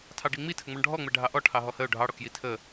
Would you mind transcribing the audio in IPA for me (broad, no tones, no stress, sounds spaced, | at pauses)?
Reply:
tʰ ɑ ɖ i ŋ͡m i tʰ ə ŋ͡m ɔ ɳ ɖʱ ɔ ŋ͡m ɛ ɖʱ ɑ ʔ ɔ ʈʰ ɑ ɦ ɔ h ə ʊ̯ ɖʱ ɑ ɽ ɔ k j i tʰ ə